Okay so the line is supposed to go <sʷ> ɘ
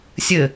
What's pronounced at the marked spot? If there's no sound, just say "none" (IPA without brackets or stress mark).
sʲ